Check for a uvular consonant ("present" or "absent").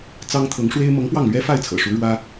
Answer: absent